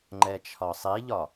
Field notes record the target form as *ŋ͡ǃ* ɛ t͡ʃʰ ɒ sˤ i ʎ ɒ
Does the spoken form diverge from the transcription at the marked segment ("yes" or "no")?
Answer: no